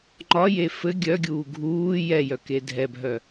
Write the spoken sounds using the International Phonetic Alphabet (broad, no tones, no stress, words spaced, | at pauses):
ŋ͡ǃɒje fɘ ɡʲœɡʲuː ɡʱuː jɛjœ kedʱɛbʱœ